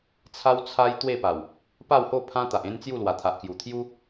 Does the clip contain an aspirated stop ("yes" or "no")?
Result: yes